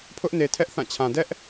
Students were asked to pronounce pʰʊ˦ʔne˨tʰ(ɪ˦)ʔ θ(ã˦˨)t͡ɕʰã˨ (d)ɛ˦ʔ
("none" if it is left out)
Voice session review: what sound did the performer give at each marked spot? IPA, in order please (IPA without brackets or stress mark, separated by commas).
ɛ˦, ã˦˨, d